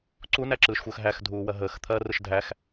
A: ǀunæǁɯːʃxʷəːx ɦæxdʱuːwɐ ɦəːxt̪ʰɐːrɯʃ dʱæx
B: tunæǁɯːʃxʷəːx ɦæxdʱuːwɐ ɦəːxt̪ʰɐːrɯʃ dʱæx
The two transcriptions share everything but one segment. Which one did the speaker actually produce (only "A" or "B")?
A